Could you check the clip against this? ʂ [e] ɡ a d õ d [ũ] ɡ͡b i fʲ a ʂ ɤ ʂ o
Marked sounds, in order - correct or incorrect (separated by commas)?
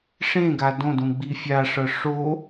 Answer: incorrect, correct